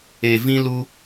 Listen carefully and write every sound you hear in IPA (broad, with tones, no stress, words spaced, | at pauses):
e˨vĩ˧ lu˧